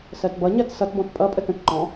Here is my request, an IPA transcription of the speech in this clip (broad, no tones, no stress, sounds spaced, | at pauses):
s ɜ t b ʌ ɲ ɜ t s ʌ t b ɔ̃ t pʼ ʌ pʼ ə t ə̃ t ǃ ɔ̃